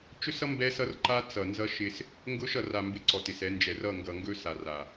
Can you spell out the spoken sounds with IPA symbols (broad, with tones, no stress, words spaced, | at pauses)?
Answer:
t͡ʃɵ˦sʌ˦ mbɛ˦sʌ˦rǃa˦ t͡sʌ˨ nzʌ˦ʃɪ˦s | ŋɡʊ˦ʃ ʌ˨ra˨mbɪ˨ ǀɔ˨tɪ˨sɛ˨˦ nd͡ʒɛ˨r ʌ˦˨ŋɡʌ˨ŋɡɵ˦ sa˨r a˨